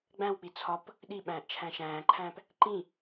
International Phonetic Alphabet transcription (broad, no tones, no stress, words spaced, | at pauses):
ɡ͡bæ̃wk͡pi t͡sʰɒp | ɗiɓæ̃ːʔt͡ʃʰæ̃ ʃæ̃ːǃʰæ̃ːp | ǃĩ